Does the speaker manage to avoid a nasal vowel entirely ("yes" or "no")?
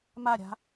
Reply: yes